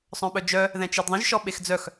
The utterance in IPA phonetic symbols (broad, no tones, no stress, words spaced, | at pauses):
sˤœ̃ɓœd͡ʒœ | ðɛ̃t͡ʃedðˤə̃ʒ ʃɔɓexd͡zœx